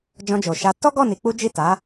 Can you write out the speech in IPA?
d͡ʒ ɔ̃˧ d͡ʒ o˨ ʃ a˧ t ɔ˦ ɡ ɔ˦˨ n i˨˦ k͡p u˦ d͡ʒ i˦˨ t a˨˦

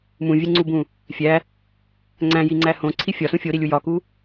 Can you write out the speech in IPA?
m ũ vʲ e ŋ͡ǀ u b ũ | fʲ æ | ŋ͡ǀ æ̃ j i ŋ͡ǀ æ h õ ǀʰ i fʲ ɒ s ũ fʲ o ɾ i lʲ u j ɒ k u

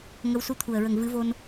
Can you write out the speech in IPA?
ŋ ə˧˥ w s u˧ t̪ʰ u˨˩ ə̯ ɹ ə˨˩ ŋ v ɨ˨˩˦ v o˧ n

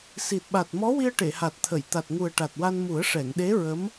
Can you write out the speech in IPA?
s i˨˩ t̚ ɓ a˨˩ t̚ m ɔ˧˥ w i˧ ə̯ ʈ e˨˩˨ h a˨˩ t̚ t̪ʰ ə˨˩˨ j t̪ a˨˩ t̚ ŋ u˨˩ ə̯ ʈ a˨˩ t̚ w a˧ n m u˨˩˦ ə̯ ʂ ɛ˨˩˨ ŋ ɗ e˧˥ ɹ ə˧˥ m

